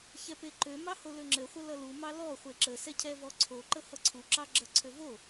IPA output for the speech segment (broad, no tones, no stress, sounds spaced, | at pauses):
ç ɛ p e ǃ ø m ɑ h o l ø ŋ͡ǁ ɘ χʷ ə l ʌ l u m ɑ l ɔ χʷ e ǁ ə s ɛ cʰ ɛ v ɔ ǀʰ o ǃ ə h ʌ ǀʰ u ǁ ɑ ɡ͡ǁ ə ǀʰ ø v o